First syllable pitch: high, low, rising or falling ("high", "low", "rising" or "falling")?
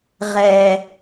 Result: low